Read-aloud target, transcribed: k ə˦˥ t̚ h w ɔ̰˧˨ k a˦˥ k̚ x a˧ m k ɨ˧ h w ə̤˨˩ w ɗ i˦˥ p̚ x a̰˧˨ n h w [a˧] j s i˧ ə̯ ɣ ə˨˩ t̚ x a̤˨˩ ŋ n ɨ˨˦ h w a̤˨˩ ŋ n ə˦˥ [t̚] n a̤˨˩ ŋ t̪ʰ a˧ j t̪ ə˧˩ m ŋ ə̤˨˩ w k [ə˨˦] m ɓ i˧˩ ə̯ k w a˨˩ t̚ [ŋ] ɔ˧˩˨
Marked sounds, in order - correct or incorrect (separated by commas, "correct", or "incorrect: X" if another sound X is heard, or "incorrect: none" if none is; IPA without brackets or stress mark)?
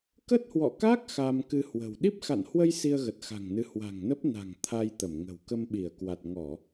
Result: incorrect: ə˧, incorrect: p̚, incorrect: ə˧, correct